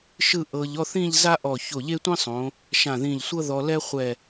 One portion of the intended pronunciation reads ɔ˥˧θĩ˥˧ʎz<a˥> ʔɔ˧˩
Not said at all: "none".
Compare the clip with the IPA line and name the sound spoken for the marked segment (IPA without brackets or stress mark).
a˥